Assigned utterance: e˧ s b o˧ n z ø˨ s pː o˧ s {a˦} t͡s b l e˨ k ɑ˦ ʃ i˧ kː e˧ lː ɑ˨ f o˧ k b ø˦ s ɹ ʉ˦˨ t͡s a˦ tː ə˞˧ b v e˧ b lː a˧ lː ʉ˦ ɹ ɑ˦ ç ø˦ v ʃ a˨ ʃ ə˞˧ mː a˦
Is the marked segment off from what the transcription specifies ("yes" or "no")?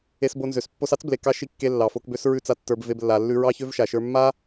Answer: yes